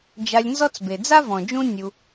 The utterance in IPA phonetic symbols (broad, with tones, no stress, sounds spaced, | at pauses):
d͡ʒ a˨ lʲ n z ɔ˦ t͡s b e˩ d͡z a˥ v ɔ̃˩ d͡ʒ ũ˦ nʲ u˨